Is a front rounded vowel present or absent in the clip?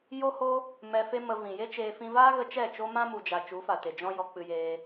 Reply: absent